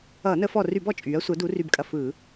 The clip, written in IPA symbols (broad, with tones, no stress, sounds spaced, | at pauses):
ʌː˧˩˧ n əː˧˩˧ f ɔ˨˩ r y˧˩˧ b ɔ˨˩ t͡ʃʼ yː˩˧ ɐ̯ sʷ əː˩˧ d u˩˧ r y˨˩ b kʼ ɐ˨˩ f ɯː˧˩˧